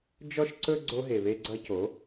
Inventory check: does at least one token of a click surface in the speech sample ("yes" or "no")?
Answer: yes